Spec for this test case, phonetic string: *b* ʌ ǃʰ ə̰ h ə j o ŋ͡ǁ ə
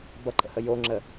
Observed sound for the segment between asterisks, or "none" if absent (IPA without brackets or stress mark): b